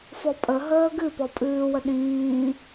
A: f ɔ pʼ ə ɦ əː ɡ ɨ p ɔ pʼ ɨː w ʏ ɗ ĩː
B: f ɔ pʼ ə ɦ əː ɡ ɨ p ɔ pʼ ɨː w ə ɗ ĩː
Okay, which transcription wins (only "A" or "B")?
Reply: B